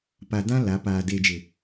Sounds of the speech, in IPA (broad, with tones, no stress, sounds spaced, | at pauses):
p a˨ d ã˦ l a˨˦ p aː˨ d e˨ d͡ʒ ɪ˨